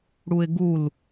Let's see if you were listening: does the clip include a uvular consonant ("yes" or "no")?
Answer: no